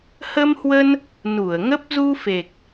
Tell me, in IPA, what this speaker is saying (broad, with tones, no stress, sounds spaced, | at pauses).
h ə˧ m h w ə˧ n | n u˧˩ ə̯ ŋ ə˦˥ p̚ z u˧ f e˨˩ k̚